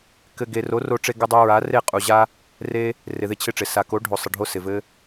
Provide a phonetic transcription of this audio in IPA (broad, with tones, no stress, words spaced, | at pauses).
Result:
kɘ˨ ɡe˨ro˨˦ro˧ʈ͡ʂe˧ ɡɪ˧dˤu˧ɹa˨˦ re˦˨qʼu˨ʑa˦ | re˦ | rɪ˨ðɪ˦˨t͡ɕʰɪ˦˨ʈ͡ʂɪ˨ sa˨ko˨˦ ɖʱo˨sˤɘ˨ɖʱo˦ sɪ˨vɘ˦